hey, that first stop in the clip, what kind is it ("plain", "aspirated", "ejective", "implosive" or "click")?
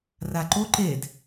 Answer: click